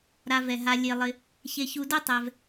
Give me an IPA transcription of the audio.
ɾa˨vɛ˩ɦa˨ lʲe˩lˠɪ˩ | çe˨çu˨do˦ tˤɛ˩v

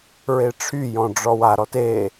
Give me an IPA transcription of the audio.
ɹeʈ͡ʂʰyjɔ̃ ɖ͡ʐɔwaɾɔt e

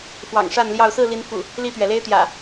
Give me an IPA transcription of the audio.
fwɑ̰˨˩ŋʂa˥˨nljɑ˥˨ʊ̯ sɹ̩˥˨ li˨˦nfṵ˨˩ | li˥˨t̪ɥɛ˩le˦ɪ̯t̪jä̰˨˩

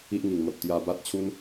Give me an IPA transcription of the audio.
i˦ʔŋi˨˩ŋ mə˨p̚t̪ja˧ba˦t̚t͡ɕʰu˦n

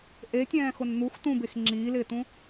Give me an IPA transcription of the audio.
ʔetʲɛ̃ːxʊn n̪ux tũbex ŋ͡ǁiːlɪːtũ

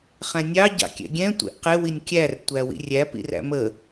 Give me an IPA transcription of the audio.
χɛ̃nʲɑ ɟɑ̰kʲɛ̰ɡʲɛ̃ tʷɛ̰ʔqɪ winʲkʲær tʷæwḭrʲæ pḭræ̰mə

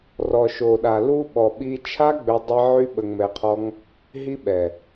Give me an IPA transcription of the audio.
rɔ˨ʃo˨ɗa˨ lu˦ ɓɔ˨ɓi˧t͡ʃʰa˦ɡ͡bø˧ dˤe˦ʕy˦ ɓə˧ŋmɛ˧qʰɔ˦ŋ | ɦi˦ɓɛ˨

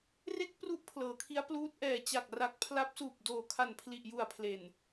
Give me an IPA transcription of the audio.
re˥˩k̚ pru˦˥ʔ pʰlɤː˩˦kʰi˦˥a̯ pluː˦˥t̚ʔɛː˨˩ t͡ɕa˨˩k̚ra˨˩k̚ pʰla˦˥p̚suː˨˩p̚ doː˨˩kʰa˨˩npʰli˨˩ʔju˨˩a̯ pʰle˨˩n

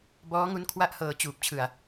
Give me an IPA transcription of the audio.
bɔː˦˥ŋu˦˥n kʰwa˥˩ʔhɤː˧ t͡ɕuː˨˩p̚ t͡ɕʰɯ˧a̯

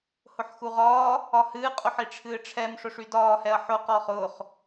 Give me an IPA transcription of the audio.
hʊħxuʁɒː | ɒhɨː qʼʊħiʈ͡ʂʰɨːʈ͡ʂʰɛm ʂʊʂydɒː hɛɐ̯ħʊ qɒːχʊːχ

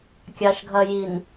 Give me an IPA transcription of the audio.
kʲɑʃɡʱɐjin

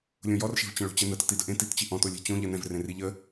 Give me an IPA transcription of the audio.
lʲõjɔrʃe̤vt͡ɕə̃ ɭo̤t͡ɕɛnə tətidəʔẽ tit t͡ɕiʔɔ̃to lʲɛ̤t͡ɕõ ʎɜnɛ̃vrẽri ʎə

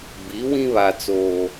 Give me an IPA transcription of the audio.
bi˨˦wĩ˦βa˨ t͡soː˦

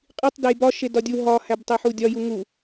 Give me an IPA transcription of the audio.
qʼitˤ dejbɒ ʃedɒdʲu ɦɒ hæbtˤeħudʲɒ juŋu

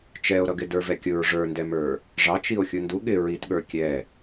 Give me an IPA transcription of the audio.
t͡ʃɛo̯ɾʌɡɪ də˞vɛkʲʊɹ ʐə˞ndɛmə˞ | ʐɑt͡ʃio̯ xʲundu ɠɪ ɹitɠə˞ kʲɛ

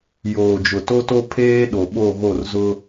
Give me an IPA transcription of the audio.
joː˨d͡ʒʊ˨to˦to˦ pʰeː˦ɗo˨ɓo˦˨ɣo˦˨r zʊ˦

